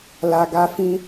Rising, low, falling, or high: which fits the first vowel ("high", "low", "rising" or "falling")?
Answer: low